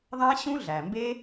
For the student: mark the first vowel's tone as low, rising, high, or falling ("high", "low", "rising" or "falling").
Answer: high